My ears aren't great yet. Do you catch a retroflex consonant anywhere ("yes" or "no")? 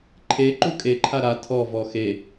no